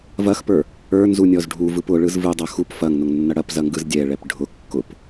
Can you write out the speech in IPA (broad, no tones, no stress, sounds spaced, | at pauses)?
v ɐ x p ə˞ | ə˞ n z u nʲ ɔ z ɖʱ u v ɯ p ʊ ɭ ɯ z v ɯ dˤ ɐ x u p f ɐ ŋ n ʊ ŋ nː ɐ ɽ ɐ p z ɐ ŋ ɡ ɯ z dʲ ɛ ɭ ɛ p ɖʱ ʊ kː ʊ p